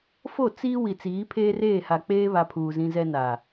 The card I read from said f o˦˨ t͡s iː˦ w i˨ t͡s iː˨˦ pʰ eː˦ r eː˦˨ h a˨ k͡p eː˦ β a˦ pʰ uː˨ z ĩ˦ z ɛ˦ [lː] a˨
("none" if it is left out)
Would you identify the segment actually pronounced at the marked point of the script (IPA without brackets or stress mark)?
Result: n